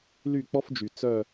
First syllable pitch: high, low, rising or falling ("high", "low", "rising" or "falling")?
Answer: falling